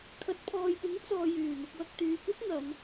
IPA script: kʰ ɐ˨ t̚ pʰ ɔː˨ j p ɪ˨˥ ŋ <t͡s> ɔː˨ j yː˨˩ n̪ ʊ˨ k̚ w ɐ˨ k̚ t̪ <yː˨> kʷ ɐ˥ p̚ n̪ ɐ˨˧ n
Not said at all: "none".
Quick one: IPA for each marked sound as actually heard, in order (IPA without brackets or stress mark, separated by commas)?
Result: t͡s, yː˨